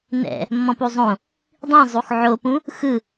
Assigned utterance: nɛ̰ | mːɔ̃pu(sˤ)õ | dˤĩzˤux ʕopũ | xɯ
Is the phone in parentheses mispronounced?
yes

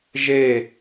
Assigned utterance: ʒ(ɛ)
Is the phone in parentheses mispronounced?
yes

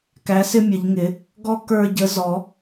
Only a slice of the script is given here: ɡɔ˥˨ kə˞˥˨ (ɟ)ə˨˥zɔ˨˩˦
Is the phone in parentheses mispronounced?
no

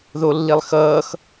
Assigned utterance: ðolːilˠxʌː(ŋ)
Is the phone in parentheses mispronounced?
yes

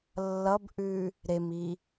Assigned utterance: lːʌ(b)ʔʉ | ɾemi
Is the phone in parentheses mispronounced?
no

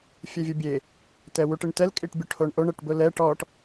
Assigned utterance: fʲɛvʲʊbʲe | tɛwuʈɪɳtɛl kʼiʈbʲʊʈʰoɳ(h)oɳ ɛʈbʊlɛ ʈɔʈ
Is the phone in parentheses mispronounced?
yes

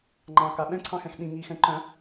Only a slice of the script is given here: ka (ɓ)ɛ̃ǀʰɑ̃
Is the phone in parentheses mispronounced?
no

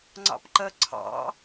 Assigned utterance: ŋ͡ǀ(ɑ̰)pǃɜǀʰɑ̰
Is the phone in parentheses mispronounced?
no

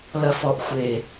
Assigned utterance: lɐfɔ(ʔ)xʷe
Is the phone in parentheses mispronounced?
no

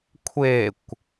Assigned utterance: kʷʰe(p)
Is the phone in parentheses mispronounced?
yes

